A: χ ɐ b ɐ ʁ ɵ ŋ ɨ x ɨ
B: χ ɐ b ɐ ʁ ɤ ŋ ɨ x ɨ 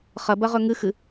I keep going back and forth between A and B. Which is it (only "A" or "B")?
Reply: A